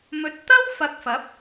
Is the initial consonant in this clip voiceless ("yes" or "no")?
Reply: no